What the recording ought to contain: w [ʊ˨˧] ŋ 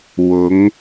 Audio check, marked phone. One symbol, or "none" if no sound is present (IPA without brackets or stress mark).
ʊ˨˧